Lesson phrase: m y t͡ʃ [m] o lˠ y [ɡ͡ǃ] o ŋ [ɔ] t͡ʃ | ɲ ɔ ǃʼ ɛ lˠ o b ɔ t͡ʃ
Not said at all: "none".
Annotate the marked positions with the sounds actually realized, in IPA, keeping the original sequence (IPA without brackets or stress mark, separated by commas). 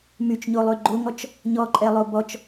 ɲ, ɡ͡ǃ, ɔ